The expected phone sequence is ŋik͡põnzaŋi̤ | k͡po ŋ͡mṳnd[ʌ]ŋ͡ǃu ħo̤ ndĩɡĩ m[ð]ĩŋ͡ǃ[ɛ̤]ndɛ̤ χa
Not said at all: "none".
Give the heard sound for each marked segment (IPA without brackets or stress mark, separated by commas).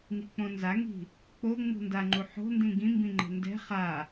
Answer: a, b, ɛ̤